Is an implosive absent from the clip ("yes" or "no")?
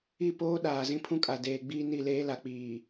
no